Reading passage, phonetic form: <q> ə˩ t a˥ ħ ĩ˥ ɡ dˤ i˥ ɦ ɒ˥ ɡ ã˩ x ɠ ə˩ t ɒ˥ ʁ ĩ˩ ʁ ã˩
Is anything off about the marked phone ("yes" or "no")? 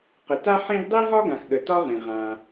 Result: no